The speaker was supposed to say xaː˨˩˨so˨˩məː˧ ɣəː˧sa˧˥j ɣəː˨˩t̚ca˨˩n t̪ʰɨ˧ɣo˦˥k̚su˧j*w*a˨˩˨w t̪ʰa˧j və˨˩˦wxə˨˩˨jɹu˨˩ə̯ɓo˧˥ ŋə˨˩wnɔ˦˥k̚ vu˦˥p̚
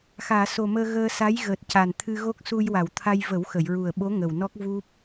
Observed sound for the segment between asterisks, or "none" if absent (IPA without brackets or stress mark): w